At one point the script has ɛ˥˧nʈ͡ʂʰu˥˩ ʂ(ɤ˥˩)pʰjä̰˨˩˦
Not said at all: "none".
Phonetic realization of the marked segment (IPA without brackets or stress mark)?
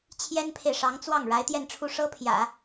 ɤ˥